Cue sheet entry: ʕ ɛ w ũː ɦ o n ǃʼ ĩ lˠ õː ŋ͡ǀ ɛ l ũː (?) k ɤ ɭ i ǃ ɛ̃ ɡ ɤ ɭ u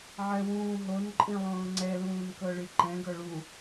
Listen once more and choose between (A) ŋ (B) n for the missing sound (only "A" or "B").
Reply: B